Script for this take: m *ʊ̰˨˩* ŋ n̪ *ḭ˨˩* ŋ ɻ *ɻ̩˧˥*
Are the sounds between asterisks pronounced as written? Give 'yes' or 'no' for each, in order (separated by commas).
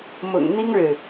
yes, no, no